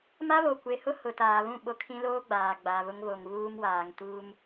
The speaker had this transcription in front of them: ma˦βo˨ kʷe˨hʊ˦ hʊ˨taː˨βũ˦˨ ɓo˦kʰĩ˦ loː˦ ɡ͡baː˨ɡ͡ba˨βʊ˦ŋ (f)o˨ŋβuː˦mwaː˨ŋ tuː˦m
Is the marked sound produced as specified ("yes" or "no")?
no